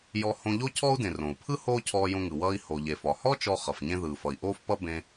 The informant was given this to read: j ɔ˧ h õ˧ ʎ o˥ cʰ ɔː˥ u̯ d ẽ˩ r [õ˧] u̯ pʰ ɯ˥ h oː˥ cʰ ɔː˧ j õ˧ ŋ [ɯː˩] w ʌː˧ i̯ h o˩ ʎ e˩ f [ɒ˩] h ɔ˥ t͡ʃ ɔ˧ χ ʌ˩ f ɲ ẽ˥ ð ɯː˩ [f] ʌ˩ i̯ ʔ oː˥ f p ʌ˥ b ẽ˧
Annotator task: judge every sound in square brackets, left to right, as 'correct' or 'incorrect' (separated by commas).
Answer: incorrect, incorrect, correct, correct